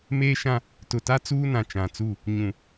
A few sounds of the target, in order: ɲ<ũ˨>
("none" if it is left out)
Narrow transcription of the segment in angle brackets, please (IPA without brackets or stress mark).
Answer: ũ˨